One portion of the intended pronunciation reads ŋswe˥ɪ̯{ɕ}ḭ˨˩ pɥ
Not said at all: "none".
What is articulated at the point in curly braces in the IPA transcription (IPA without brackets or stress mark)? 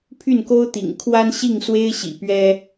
ɕ